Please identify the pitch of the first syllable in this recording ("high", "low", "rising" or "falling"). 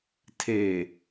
low